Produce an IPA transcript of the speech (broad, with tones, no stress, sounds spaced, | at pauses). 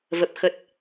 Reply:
v ə˨˩ p̚ x ə˨˩ t̚